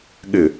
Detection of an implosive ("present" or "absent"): present